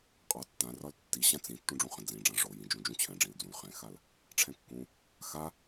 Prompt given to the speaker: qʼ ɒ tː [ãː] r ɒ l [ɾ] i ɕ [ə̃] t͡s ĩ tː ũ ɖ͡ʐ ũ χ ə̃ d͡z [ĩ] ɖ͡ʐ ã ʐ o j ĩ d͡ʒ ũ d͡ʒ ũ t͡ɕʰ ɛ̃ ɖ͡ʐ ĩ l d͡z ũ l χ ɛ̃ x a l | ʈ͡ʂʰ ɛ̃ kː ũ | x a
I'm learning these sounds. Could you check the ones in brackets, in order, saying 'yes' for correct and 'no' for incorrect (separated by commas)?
no, no, no, yes